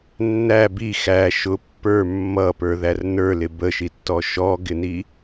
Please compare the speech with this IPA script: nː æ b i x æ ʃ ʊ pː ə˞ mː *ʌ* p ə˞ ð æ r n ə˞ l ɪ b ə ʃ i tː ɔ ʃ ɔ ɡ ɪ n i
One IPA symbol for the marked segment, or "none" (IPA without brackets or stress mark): ʌ